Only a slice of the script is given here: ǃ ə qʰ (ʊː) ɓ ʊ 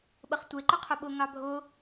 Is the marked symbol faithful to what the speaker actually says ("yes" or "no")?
no